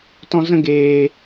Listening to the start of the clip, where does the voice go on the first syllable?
high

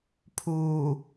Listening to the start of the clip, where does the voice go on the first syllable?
low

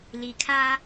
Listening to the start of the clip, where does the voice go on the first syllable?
low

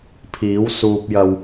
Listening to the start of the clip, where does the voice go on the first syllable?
rising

